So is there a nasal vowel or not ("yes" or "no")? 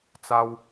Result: no